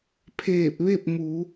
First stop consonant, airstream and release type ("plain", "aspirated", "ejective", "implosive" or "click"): aspirated